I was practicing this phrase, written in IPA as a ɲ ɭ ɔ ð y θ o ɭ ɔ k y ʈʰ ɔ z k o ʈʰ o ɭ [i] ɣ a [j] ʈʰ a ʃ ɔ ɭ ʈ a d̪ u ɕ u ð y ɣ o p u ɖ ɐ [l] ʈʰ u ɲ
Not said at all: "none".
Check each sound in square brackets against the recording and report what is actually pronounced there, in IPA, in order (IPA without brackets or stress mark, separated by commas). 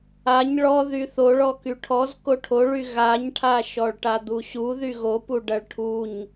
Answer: y, ɲ, ɭ